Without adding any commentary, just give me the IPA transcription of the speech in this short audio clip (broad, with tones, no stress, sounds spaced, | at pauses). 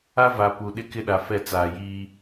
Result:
a˦ v a˨ p u˨ ɗ ɪ˦ k ɪ˦ ɗ a˨ f ɛ˦˨ t͡s aː˨ j iː˦